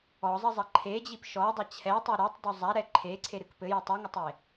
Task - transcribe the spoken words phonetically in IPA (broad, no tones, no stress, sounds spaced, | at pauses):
ɔ zˤ ɘ zˤ ɐ ǃʰ e d͡ʑ i p ʃ ɔ dˤ ɐ t͡ɕʰ ɛ tˤ e ɾ ɔ tˤ d o zˤ a ɾ ɛ ǃʰ e ǀʰ e ɾ ɨ k p ɘ j ɐ tˤ u ŋ ɘ tˤ e